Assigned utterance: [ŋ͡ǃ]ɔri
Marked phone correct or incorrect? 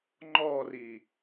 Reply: correct